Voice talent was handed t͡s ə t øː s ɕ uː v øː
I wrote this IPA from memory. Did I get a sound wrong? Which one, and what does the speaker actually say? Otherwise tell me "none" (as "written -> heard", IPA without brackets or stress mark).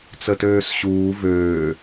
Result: none